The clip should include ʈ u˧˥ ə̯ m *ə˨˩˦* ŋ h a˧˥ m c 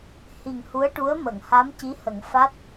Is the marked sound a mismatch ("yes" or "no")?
yes